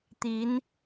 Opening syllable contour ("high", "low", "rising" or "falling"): rising